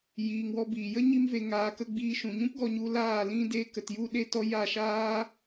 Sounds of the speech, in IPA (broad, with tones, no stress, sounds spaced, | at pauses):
j iː˨ ŋ w ɔ˧ b iː˨ j ə˦ ɲ i˦ m v e˧ ŋ aː˧ k ə˦ ɡ͡b iː˧ ʃ ũ˨ ɲ ũ˦ p ɡ ɔ˧ ɲ u˧ l aː˦˨ l ĩ˦ d e˦ k ə˧ t j u˦ ɗ e˦ t ɔ˦ j a˦˨ ʃ aː˦